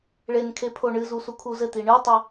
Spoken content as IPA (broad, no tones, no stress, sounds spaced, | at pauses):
ɭ e n kʰ e pʰ o ɳ ɨ z u s u kʰ u z ɘ t̪ i ɳ ɨ tˤ ɘ